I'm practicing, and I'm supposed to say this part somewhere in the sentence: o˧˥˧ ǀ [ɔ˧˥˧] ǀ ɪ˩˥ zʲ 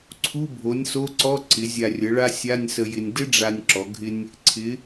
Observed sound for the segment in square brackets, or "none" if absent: ɔ˧˥˧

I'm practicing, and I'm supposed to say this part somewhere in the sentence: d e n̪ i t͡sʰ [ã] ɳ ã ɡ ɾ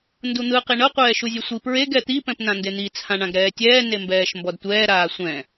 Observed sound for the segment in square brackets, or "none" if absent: ã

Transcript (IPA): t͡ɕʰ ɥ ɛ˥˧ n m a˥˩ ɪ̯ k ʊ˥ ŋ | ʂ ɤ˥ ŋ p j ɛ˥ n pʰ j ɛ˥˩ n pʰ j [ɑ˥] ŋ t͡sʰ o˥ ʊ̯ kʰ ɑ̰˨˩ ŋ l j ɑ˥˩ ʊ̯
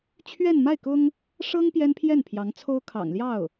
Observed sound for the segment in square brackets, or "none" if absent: ɑ˧˥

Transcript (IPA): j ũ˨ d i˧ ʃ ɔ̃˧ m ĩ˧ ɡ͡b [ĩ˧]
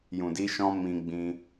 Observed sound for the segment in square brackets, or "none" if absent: ĩ˧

